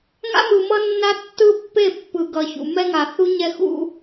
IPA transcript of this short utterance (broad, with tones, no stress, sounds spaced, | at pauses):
ŋ a̰˦ m ɯ˨ m ʌ˦ nː a˦ tː ɯ˦ pː e˦˨ pː ɯ˨ ɡ ʌ˨ ç ṵ˨ m ɛ˦ ŋ a˨ θ u˦ ɲ ɛ˦ x ṵ˦